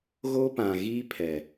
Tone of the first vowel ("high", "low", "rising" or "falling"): high